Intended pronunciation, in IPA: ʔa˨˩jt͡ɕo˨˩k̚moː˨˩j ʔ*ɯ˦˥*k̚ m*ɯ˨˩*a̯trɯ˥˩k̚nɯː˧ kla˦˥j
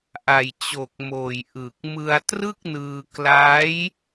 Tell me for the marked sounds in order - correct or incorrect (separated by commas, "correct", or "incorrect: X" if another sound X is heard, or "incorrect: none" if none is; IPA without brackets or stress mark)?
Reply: incorrect: ɯ˨˩, incorrect: ɯ˧